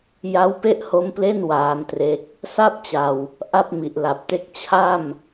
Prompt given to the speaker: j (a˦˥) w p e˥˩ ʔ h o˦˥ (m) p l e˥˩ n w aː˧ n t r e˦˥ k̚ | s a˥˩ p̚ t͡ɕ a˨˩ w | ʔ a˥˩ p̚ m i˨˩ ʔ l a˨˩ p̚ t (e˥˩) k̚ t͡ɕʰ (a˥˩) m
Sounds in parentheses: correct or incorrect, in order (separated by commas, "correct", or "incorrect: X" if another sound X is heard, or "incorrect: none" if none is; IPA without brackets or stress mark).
correct, correct, correct, correct